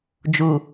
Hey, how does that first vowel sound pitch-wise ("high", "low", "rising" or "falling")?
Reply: low